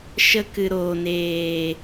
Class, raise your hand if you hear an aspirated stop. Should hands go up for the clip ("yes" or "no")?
no